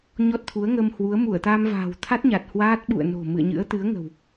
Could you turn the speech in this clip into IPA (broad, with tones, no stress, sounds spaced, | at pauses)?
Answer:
ɲ ɔ˦˥ t̚ t̪ʰ u˨˦ ə̯ ŋ ə˧ m h w u˨˦ ə̯ m u˧˩ ə̯ t̪ a˧ m v a̤ː˨˩ w t̪ʰ a˦˥ t̚ ɲ a˨˩ t̚ h w aː˦˥ t̚ ɓ ṵ˧˨ ə̯ n o̤˨˩ m ɨ̰˧˨ ə̯ ɲ ɨ̰˧˥ ə̯ t̪ ɨ˨˦ ə̯ ŋ ə̤˨˩ w